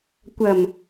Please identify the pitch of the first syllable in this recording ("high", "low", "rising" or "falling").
low